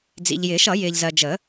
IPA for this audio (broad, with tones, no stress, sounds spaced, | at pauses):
d͡z ḭ˨ ʎ j ɪː˨˩˦ ʃ ʌ˨˩˦ j ɪː˨ ʎ z ɜ˨ d͡ʒ ə˨˩˦